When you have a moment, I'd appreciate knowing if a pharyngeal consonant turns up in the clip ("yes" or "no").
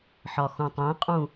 yes